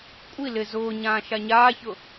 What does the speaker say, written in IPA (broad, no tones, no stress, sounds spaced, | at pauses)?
kʷʼ i l ɪ z ʊː ɲ ãː ʃ a ɲ aː ç ʊ